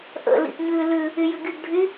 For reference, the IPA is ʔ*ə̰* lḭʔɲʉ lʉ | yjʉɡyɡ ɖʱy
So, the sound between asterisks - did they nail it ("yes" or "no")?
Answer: yes